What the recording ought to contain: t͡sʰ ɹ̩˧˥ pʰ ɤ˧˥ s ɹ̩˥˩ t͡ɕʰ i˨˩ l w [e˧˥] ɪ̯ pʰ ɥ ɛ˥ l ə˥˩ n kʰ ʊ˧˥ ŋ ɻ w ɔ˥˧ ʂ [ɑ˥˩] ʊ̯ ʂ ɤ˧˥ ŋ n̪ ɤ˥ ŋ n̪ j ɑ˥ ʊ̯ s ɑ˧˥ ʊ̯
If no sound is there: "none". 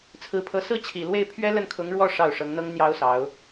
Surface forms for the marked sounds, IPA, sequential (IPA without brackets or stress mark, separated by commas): e˥˩, ɑ˥˩